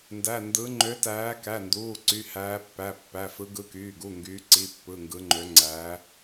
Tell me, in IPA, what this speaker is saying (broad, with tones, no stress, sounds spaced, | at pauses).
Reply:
n d æ˩˧˩ n d ɯ˨˦ ŋ͡ǃ ø˨˦ t æː˨˦ k æ˩˧˩ n d uː˩˧˩ ǀ y˩˧˩ h æː˨˦ pː æ˩˧˩ pː æ˩˧˩ f ɯ˨˦ ɡ ɯ˨˦ k yː˩˧˩ ɡ u˩˧˩ ŋ ɡ yː˨˦ ǀ i˩˧˩ pː ɯ˩˧˩ ŋ ɡ ɯ˨˦ ŋ͡ǃ ø˨˦ ŋ͡ǀ æ˨˦